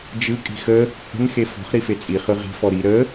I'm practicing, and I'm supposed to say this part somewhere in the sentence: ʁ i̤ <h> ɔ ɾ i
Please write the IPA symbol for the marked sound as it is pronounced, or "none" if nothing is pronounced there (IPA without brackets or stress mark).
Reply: f